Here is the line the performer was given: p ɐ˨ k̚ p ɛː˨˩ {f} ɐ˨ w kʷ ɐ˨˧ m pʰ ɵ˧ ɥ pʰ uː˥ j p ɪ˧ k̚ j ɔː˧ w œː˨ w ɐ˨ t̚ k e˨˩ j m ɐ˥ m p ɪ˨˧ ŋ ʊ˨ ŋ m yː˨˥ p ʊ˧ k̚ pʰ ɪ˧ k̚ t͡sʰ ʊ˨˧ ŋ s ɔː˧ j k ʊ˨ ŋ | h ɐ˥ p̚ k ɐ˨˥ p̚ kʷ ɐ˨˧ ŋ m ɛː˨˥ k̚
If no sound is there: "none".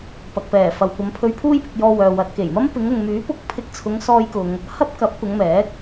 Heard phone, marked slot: f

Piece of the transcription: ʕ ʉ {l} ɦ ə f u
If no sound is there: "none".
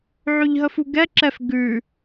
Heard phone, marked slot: ʎ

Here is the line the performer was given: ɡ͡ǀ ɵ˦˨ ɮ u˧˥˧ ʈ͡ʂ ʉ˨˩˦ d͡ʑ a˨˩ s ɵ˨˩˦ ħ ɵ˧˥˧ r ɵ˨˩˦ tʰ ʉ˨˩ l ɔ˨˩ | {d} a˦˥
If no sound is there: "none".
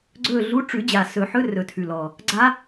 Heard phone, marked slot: ɡ͡ǀ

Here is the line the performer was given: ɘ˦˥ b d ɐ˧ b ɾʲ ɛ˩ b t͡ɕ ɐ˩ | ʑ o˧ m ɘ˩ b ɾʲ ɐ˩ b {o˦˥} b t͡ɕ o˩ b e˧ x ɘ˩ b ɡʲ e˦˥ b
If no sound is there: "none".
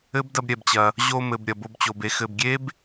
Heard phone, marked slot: o˧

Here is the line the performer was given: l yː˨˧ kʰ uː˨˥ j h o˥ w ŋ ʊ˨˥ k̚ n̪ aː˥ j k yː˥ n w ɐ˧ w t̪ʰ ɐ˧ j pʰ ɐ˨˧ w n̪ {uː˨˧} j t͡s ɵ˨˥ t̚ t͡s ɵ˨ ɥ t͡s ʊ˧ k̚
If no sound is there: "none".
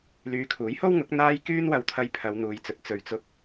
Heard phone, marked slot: uː˨˧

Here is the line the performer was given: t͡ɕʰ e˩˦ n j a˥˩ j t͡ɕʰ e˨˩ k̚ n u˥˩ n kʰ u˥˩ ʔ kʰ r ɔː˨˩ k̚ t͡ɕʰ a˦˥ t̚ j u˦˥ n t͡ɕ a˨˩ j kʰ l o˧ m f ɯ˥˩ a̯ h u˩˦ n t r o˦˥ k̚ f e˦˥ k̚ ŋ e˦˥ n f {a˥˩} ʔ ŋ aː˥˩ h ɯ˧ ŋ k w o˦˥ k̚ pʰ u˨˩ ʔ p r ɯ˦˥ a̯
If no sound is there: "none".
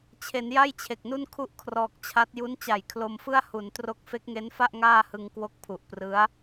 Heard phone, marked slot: a˥˩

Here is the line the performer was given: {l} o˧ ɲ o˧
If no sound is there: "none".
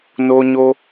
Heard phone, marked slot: n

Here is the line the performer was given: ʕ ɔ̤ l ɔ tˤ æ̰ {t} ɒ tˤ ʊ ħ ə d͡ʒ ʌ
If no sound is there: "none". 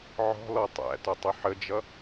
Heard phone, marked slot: t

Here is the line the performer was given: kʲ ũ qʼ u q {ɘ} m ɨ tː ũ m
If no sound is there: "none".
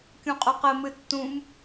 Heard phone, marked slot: ɘ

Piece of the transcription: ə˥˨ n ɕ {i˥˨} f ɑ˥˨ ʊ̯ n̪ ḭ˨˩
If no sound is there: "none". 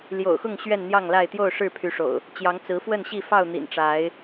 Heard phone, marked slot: i˥˨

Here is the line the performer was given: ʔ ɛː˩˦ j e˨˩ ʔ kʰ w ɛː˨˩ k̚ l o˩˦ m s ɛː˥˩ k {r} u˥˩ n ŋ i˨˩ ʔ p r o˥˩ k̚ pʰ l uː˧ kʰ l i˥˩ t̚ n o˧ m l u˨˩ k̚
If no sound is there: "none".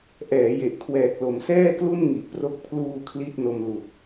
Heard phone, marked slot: l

